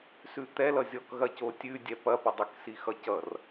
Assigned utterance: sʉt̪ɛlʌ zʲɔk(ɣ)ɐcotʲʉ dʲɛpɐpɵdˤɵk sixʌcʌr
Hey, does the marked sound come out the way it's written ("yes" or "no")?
yes